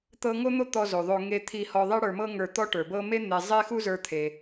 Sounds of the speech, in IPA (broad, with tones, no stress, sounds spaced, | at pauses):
t̪ ɤ˥ ŋ o˥ n̪ o˥ t̪ ɔ˧ z o˩ ðˤ o˧ ŋ e˧ t̪ʰ i˧ h ɔ˧ ðˤ e˥ ɽ ə˞˧ m ɤ˥ ŋ ə˞˧ t̪ ɔ˥ ʈ ə˞˩ b ɤ˥ m e˥ n̪ e˧ zˤ e˥ x u˥ z ə˞˧ t̪ʰ e˩